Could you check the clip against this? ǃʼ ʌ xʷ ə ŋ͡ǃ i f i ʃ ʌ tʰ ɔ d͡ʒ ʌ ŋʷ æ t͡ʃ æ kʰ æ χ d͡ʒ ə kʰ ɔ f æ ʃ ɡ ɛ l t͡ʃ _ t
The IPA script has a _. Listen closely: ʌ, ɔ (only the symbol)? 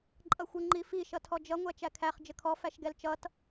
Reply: ʌ